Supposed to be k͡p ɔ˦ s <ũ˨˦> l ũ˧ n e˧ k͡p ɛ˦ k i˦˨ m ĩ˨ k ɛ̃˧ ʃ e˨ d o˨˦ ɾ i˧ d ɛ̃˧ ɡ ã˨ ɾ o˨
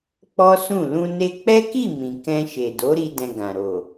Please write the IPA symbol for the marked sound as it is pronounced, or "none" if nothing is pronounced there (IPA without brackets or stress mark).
ũ˦˨